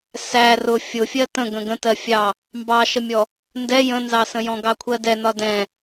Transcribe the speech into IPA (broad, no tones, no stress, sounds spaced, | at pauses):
s æ r ʊ fʲ ʊ fʲ ɜ t ə̃ ɡ ə̃ ɡ ə̃ t ɜ fʲ ɑ | m b ɑ ʃ ə mʲ ɔ | n d ɛ j ə̃ n z ɑ s ə̃ j ɔ̃ ɡ ɑ kʷʰ ɜ d ɛ n ɒ d ɛ̃